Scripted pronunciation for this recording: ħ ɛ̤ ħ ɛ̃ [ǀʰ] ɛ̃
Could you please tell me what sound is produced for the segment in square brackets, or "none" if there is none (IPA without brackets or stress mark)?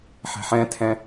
tʰ